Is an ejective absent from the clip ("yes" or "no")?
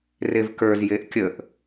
yes